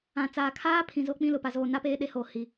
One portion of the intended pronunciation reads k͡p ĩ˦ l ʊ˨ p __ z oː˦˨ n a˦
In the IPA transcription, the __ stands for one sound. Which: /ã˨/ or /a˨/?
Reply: a˨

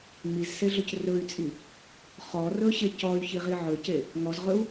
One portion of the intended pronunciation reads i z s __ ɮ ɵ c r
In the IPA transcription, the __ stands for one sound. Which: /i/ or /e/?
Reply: e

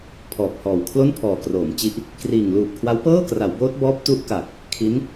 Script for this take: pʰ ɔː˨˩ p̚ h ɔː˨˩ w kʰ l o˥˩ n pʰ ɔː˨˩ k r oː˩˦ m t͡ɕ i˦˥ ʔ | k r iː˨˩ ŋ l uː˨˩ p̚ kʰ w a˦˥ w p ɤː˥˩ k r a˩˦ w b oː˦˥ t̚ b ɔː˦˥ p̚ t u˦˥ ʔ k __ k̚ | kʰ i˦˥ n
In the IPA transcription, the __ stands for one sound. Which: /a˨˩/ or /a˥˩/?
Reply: a˨˩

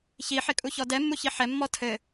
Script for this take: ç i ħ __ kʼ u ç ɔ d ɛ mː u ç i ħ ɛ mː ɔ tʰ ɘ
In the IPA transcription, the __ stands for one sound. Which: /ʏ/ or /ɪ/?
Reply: ɪ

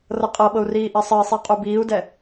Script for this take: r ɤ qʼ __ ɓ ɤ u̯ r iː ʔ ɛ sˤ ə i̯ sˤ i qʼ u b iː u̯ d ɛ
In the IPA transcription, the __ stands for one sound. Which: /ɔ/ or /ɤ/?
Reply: ɤ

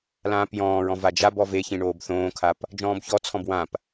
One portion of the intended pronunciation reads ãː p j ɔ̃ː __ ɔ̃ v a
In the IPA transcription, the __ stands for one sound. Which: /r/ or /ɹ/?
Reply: ɹ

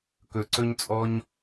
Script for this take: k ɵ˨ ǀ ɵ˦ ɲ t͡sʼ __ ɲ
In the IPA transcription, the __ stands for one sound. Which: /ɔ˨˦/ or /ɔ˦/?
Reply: ɔ˦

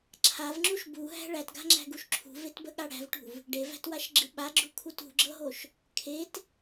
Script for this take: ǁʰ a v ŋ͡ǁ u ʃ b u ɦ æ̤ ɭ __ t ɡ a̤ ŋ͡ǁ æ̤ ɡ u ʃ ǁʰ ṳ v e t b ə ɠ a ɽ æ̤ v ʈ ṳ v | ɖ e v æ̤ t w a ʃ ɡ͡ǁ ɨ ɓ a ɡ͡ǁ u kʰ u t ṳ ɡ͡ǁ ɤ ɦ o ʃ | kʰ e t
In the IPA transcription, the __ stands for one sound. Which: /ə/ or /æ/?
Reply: æ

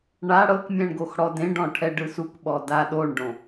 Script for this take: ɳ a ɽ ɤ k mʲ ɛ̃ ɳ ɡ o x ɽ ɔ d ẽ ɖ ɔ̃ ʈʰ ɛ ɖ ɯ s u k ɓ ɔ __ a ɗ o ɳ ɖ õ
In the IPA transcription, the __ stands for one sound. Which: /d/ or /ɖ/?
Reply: d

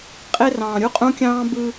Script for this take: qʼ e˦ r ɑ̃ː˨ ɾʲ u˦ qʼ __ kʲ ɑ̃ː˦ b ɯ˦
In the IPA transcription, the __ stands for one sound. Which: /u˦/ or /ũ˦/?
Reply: ũ˦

